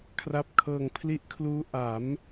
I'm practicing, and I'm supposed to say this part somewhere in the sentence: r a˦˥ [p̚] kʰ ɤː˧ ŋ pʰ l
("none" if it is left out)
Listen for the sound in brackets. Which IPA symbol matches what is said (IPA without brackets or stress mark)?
p̚